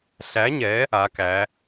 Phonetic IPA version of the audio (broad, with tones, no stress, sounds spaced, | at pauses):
ɬ æ˨˦ ɲ ɛ˨˦ | a˨˦ k æ˨˦